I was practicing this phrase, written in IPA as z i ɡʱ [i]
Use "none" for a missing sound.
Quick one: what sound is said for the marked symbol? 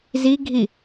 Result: i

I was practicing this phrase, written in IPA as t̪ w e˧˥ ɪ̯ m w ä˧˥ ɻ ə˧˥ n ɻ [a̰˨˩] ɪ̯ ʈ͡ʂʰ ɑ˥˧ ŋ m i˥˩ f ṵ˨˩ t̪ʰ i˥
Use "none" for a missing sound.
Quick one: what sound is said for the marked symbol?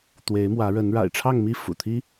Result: a̰˨˩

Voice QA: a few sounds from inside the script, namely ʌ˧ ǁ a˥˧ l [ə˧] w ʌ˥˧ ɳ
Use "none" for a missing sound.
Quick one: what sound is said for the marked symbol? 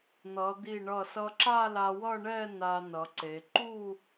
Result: a˧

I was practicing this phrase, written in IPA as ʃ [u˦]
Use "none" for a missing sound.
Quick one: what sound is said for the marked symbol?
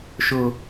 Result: ʊ˦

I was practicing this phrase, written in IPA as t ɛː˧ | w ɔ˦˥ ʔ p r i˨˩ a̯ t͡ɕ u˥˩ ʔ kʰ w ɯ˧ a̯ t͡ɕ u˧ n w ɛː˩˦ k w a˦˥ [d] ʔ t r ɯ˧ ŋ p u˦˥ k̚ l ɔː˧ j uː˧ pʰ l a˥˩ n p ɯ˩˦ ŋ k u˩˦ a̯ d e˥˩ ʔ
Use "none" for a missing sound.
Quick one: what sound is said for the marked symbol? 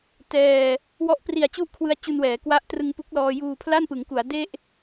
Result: none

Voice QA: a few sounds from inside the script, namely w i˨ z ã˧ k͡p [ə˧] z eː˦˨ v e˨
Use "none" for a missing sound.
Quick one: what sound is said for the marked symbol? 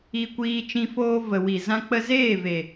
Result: ə˧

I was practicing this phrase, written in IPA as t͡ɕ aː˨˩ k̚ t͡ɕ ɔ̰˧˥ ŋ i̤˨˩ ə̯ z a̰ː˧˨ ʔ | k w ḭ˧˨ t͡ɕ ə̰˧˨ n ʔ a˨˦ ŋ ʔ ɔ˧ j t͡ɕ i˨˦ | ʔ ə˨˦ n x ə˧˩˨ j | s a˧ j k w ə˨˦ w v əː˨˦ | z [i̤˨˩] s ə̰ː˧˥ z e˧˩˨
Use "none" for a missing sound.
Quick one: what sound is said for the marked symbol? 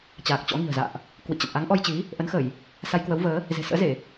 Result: e̤˨˩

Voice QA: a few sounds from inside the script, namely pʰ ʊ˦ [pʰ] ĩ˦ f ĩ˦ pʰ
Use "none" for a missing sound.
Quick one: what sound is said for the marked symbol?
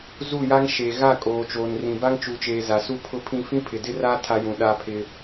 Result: pʰ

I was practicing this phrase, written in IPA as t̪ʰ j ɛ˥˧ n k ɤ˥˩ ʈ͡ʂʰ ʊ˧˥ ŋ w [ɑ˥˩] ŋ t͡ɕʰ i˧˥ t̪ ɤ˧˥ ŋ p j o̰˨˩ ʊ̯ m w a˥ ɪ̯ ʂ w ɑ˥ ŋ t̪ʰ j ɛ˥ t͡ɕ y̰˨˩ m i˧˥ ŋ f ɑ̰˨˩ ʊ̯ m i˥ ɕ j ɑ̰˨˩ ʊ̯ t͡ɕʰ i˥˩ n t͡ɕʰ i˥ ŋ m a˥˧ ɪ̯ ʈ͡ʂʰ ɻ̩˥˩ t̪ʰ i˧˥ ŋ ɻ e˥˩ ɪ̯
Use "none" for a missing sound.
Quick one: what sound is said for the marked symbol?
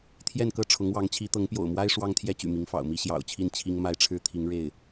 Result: ɑ˧˥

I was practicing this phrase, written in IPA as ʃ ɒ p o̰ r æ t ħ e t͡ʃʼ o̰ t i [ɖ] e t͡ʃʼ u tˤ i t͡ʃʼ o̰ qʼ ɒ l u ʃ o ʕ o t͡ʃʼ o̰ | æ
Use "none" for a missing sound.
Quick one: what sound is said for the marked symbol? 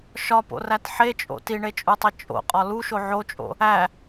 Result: ɳ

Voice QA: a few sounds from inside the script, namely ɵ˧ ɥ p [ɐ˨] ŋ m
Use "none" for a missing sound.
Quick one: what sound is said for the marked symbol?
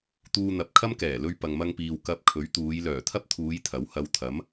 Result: ɐ˨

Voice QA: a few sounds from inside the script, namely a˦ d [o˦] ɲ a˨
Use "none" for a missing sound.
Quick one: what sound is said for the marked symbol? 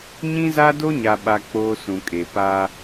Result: o˦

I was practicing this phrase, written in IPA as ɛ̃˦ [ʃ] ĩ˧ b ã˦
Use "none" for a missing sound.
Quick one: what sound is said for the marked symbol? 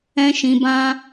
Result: ʃ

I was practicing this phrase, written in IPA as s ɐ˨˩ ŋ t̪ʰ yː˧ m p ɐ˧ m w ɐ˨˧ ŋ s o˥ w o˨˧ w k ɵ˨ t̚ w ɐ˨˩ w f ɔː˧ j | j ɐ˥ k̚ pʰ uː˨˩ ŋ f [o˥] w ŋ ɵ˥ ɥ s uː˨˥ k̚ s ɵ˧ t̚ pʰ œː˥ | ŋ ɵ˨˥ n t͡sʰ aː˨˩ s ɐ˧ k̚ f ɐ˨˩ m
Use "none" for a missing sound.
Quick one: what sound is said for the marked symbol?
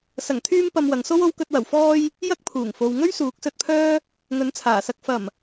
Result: o˨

